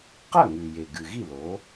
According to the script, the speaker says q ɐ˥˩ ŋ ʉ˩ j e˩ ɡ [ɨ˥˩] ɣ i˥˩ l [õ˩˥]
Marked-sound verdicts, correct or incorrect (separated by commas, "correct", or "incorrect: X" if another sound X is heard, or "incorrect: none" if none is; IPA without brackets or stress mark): incorrect: ɨ˩, incorrect: o˩˥